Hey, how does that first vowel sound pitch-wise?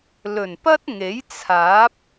low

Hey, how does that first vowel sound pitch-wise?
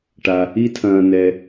low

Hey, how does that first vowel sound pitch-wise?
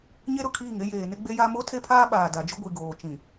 high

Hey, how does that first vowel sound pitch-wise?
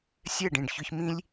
falling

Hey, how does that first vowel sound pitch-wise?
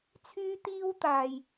high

